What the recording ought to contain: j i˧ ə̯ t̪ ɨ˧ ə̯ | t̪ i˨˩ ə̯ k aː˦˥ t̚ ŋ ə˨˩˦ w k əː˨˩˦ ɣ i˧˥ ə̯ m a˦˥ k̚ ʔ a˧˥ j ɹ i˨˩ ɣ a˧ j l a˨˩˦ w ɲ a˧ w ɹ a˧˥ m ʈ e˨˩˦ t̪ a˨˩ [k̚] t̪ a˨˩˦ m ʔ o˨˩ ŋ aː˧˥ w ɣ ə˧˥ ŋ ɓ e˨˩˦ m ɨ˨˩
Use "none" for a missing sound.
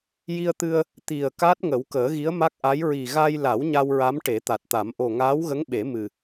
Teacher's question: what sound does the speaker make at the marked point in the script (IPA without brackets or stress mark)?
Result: t̚